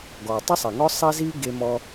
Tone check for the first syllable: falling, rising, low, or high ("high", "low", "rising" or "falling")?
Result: low